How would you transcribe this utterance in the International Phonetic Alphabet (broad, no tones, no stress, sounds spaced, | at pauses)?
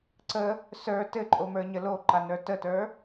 ǀ ə | s ə˞ t ɘ ǃʼ o m ə˞ ɲ ə l o ǃ a n ə˞ t ə t ə˞